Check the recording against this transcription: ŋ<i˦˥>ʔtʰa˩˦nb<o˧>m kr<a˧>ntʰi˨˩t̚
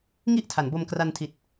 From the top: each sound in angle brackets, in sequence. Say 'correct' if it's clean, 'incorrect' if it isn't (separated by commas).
incorrect, correct, correct